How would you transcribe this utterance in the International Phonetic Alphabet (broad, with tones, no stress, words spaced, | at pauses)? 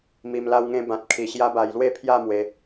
mi˧m la˧wŋẽ˧ bã˨t̚kʰi˨˩ ɕja˦ba˧j lwe˥˧pʰja˥˧mwe˧